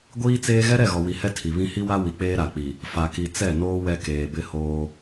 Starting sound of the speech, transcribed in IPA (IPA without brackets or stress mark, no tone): ɡʷ